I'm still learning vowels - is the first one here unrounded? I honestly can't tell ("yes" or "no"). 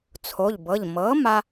no